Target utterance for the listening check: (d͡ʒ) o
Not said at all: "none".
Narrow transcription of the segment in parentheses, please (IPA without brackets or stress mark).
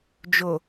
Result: d͡ʒ